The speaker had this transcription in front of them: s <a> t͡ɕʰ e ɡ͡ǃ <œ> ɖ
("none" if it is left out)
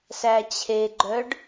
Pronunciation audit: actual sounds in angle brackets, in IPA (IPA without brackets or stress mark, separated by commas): æ, œ